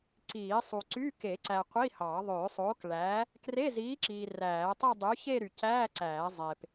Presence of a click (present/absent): present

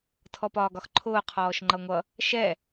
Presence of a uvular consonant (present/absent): present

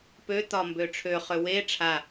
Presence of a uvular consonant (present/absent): present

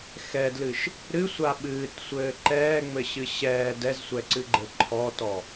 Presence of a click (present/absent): present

